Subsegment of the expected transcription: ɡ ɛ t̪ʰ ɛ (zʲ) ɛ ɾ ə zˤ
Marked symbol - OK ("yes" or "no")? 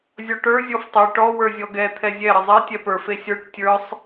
yes